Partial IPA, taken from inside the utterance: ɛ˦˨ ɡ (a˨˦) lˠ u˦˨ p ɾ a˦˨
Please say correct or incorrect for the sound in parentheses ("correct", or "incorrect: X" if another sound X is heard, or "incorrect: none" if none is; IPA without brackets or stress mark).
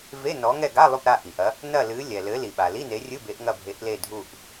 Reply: incorrect: a˧˥˧